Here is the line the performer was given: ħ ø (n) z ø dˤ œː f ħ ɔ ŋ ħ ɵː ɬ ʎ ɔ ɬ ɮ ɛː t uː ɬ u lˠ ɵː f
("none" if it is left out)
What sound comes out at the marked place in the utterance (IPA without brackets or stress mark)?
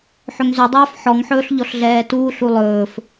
ŋ